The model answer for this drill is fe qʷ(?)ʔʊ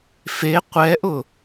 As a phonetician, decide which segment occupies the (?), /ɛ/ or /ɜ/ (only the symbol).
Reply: ɛ